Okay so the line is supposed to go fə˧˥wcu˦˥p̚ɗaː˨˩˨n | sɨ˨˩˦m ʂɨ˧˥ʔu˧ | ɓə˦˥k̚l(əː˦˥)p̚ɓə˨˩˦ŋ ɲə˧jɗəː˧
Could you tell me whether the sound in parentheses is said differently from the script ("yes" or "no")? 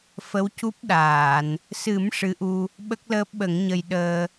no